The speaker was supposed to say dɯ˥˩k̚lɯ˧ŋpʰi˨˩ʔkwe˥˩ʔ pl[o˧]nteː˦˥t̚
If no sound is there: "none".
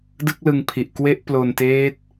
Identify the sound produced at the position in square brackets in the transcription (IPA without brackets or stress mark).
o˧